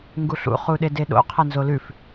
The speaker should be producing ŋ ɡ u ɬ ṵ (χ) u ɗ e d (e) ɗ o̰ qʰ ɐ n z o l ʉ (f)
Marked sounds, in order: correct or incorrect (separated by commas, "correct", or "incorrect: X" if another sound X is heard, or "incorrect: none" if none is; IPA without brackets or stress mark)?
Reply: correct, correct, correct